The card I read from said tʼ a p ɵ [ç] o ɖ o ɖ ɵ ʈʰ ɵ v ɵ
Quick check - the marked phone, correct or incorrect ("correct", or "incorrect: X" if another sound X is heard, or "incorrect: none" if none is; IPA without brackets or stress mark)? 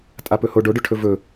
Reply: incorrect: h